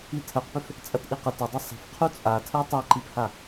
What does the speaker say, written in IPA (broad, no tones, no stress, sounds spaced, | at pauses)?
i tʰ ɜ q p ʏ f | t͡sʼ ɐ t ʔ i q ə t ɐ dˤ ɐ sˤ ə̤ f qʰ u t͡sʼ a tʰ ɜ tˤ a ǃ i p h a